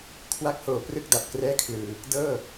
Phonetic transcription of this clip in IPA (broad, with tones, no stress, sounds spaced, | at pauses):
kʰ w a˦˥ k̚ h oː˨˩ p r ɯ˥˩ k̚ d a˨˩ p̚ k r ɛː˥˩ kʰ l ɯː˧ | d ɤː˥˩